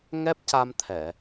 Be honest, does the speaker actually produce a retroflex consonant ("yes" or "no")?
no